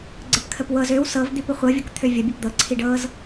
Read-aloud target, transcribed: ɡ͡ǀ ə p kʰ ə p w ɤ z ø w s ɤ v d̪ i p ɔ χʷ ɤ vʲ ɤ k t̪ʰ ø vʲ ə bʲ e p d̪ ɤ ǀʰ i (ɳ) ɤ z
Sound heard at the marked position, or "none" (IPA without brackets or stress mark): ɖ